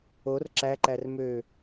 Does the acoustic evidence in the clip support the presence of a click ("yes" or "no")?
yes